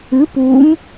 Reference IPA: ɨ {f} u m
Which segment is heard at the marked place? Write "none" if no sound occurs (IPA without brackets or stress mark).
p